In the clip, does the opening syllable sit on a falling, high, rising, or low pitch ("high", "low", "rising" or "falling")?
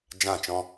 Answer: falling